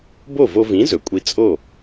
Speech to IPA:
b o˥˩ v o˧ v ĩ˩˥ z ɵ˩ kʷʼ i˧ t͡sʼ o˥˩

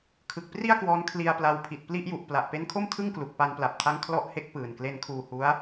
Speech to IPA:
kʰ ɯ˨˩ k̚ p r i˥˩ a̯ k w ɔː˧ n kʰ l i˧ a̯ p l a˧ w pʰ i˨˩ t̚ p l i˥˩ ʔ j u˨˩ ʔ p l a˨˩ ʔ p e˦˥ n kʰ o˥˩ m tʰ ɯ˥˩ ŋ k l u˨˩ k̚ p a˧ n p l a˨˩ p̚ tʰ a˦˥ ŋ kʰ l ɔ˦˥ ʔ h e˦˥ k̚ p ɯː˨˩ n k l e˧ n kʰ uː˧ h u˦˥ a̯

